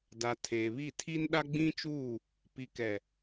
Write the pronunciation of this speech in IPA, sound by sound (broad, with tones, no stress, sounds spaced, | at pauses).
d a˨ tʰ eː˨ β i˦˨ tʰ i˦ n ɗ a˦ ɡ͡b ĩ˦ t͡ʃ uː˦˨ | p i˨ k ɛ˨